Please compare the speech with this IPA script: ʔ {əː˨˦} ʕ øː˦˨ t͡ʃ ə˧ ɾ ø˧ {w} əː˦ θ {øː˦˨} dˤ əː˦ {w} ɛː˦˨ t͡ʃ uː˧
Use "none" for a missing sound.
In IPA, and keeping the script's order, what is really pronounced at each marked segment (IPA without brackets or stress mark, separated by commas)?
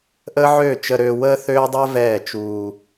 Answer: əː˦, w, øː˦, v